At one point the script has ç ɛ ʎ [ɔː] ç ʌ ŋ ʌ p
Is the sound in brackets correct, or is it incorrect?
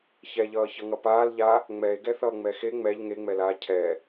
incorrect